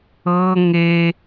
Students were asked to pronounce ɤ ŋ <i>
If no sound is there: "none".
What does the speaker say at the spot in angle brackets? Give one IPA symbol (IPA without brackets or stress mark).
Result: e